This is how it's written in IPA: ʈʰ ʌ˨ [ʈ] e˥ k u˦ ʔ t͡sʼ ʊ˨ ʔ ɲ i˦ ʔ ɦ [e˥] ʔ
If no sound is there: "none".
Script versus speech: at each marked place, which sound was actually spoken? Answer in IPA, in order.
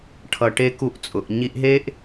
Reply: ʈ, e˥

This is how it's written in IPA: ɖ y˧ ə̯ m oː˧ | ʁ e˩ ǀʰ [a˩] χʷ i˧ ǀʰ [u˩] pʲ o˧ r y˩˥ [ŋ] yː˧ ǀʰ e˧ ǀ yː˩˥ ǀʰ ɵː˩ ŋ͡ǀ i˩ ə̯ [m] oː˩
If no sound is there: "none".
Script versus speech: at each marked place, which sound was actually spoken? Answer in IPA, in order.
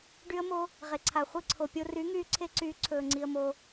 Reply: a˩, o˩, ŋ, m

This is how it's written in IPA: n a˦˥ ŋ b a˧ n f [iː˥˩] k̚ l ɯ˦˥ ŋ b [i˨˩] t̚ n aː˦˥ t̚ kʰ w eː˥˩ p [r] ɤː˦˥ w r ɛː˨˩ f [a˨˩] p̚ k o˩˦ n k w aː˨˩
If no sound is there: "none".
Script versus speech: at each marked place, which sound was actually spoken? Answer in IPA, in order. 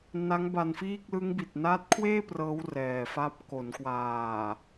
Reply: iː˥˩, i˨˩, r, a˦˥

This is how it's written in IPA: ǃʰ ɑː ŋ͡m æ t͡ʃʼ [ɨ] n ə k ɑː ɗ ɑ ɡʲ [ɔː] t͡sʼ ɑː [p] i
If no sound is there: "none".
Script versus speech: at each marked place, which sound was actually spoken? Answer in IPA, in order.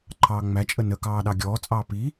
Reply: ə, ɔː, p

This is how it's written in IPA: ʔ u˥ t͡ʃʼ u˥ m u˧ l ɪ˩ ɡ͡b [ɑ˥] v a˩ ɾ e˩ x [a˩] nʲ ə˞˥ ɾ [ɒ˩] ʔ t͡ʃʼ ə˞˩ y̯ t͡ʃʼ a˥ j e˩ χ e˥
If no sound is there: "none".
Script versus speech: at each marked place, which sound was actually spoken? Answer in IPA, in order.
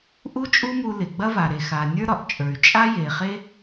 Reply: ɐ˥, a˩, ɒ˩

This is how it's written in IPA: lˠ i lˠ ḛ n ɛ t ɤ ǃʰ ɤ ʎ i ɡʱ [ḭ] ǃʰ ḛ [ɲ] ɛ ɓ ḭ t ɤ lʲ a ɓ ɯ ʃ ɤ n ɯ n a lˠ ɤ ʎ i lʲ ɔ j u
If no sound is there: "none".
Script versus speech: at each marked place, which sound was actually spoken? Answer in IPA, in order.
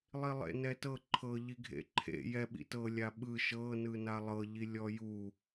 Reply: ḛ, j

